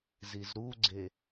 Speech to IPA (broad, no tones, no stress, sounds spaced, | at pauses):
z i z ɾ u ɡ͡ǀ e